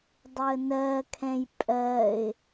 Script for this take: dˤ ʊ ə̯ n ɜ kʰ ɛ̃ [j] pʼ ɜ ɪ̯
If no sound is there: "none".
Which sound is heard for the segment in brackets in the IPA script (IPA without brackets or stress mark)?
j